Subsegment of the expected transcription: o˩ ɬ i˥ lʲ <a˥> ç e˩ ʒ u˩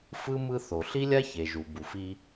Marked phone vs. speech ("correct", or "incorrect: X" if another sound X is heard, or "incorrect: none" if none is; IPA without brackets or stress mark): correct